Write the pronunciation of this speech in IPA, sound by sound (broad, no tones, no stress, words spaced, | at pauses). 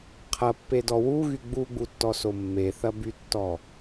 qʰɐpːedɔ wuɣy ɡ͡buɡ͡butːɔso mːeθɐbytːɔ